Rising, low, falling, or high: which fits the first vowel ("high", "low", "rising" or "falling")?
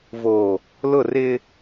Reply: low